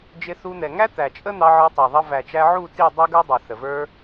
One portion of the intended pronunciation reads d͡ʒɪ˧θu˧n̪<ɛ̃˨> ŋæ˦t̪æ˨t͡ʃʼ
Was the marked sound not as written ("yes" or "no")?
yes